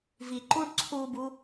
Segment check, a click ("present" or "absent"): present